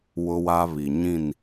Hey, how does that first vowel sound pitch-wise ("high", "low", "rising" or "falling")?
high